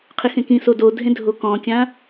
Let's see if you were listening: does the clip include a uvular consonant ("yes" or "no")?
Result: yes